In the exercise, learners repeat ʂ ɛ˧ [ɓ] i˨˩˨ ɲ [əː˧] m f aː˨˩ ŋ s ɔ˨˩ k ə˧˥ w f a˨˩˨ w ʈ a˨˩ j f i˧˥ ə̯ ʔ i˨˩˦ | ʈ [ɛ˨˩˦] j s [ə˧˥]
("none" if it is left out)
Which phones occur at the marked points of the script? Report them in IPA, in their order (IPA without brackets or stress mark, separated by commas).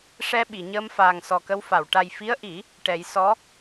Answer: ɓ, əː˧, ɛ˨˩˦, ɔ˧˥